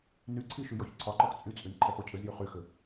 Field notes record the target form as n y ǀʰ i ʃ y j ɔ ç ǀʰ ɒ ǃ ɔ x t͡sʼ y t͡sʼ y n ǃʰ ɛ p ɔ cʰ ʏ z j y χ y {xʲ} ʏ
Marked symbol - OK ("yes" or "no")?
no